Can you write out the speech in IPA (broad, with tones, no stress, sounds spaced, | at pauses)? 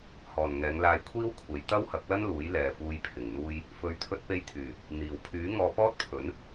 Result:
h ɔː˨˩ n ŋ ɛː˨˧ ŋ l aː˧ j kʷʰ iː˥ w kʷʰ e˨˧ j t̪ ɐ˥ w h ɐ˨˥ k̚ l ɐ˥ n l uː˨˥ j l ɛː˨ f uː˧ j pʰ ɪ˨˩ ŋ n̪ uː˥ j | f ɵ˨˧ ɥ t̪ʰ ɵ˧ t̚ p e˧ j t̪ʰ yː˨˩ | n̪ iː˨˩ w pʰ yː˨˥ ŋ ɔː˧ p ɔː˥ t̚ pʰ ɵ˨˥ n